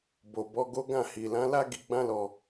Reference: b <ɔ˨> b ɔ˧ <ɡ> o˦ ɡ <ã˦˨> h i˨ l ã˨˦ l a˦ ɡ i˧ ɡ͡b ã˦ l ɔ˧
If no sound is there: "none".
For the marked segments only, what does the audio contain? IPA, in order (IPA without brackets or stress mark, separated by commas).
o˨, ɡ, ã˦˨